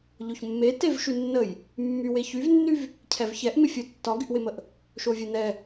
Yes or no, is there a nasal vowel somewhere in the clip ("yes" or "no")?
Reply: no